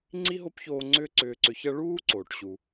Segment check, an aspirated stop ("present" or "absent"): absent